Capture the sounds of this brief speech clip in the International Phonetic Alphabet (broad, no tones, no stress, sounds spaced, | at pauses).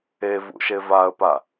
e v ṵ ʃ e v a ə̯ p a